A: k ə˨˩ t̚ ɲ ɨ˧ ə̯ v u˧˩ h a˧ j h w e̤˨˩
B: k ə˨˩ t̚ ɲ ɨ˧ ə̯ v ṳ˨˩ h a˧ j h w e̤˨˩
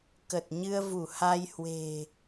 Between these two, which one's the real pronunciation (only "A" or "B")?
A